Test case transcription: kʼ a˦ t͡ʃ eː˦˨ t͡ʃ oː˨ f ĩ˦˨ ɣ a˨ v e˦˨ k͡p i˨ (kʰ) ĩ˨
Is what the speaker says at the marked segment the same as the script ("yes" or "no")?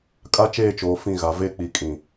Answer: no